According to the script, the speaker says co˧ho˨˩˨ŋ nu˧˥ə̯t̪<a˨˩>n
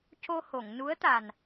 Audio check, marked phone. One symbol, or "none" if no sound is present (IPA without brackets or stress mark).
a˨˩